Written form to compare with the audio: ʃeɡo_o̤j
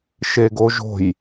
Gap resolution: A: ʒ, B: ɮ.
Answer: A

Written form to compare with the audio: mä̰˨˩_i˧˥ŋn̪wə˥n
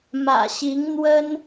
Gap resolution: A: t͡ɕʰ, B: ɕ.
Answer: B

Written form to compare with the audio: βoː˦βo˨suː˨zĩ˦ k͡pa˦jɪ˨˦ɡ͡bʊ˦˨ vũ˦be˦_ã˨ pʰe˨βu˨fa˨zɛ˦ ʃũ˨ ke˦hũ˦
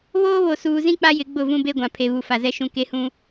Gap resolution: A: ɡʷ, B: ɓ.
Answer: A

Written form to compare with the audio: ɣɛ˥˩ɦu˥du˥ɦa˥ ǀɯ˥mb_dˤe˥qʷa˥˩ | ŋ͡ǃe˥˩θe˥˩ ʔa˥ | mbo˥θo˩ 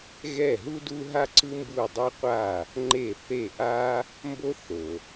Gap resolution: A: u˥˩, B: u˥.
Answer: A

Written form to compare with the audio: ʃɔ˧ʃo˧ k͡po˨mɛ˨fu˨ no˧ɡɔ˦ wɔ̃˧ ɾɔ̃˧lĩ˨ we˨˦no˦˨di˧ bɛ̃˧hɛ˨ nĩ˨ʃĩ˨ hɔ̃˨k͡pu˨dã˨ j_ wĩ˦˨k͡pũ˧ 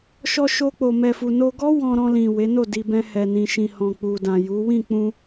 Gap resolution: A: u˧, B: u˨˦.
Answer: B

